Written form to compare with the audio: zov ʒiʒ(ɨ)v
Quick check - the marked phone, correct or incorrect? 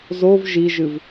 correct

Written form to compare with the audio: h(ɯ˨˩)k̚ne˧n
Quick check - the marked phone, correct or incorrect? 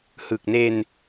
correct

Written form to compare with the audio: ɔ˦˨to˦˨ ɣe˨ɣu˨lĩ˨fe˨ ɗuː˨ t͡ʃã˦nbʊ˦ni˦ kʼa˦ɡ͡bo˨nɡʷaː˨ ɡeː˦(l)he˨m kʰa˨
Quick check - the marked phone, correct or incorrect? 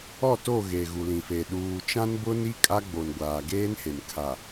incorrect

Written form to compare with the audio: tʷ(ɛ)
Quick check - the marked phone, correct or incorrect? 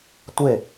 incorrect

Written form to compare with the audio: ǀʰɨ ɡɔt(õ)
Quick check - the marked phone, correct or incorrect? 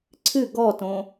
correct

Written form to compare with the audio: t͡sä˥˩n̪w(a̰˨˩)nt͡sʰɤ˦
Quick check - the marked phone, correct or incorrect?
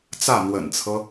incorrect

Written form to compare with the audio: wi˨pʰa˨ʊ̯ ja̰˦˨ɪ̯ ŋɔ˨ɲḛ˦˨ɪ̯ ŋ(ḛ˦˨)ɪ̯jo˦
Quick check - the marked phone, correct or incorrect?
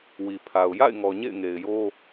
incorrect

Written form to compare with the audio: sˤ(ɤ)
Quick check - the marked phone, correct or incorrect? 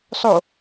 incorrect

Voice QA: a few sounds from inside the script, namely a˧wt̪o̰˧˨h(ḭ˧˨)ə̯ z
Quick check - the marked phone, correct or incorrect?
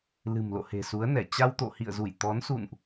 correct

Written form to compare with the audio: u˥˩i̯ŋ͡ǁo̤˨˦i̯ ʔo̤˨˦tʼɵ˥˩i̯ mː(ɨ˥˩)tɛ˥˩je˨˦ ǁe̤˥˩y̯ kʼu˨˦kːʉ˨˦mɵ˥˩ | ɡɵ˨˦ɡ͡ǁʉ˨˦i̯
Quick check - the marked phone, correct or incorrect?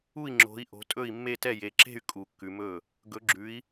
incorrect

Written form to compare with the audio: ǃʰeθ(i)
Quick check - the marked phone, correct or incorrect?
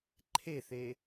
incorrect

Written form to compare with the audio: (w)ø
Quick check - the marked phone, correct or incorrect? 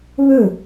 incorrect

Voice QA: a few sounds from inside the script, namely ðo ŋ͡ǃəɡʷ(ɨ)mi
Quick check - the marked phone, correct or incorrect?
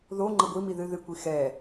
incorrect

